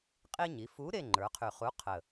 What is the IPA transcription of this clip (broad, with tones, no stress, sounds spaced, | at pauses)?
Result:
qʼ i˦ ɲ i˩˧ f u˨˥ ɾ e˦˨ ŋ͡ǃ ə˞˩˧ qʰ y˨˩ χ u˨˥ qʰ ə˨˩